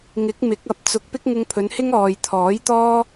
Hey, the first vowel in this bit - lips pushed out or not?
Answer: no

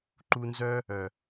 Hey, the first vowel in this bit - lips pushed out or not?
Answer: yes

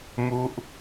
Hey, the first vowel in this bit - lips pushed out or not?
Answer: yes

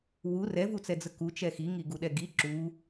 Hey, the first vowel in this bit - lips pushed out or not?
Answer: yes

